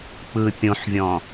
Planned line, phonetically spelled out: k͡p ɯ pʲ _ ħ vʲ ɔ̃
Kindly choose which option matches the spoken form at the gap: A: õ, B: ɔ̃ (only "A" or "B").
A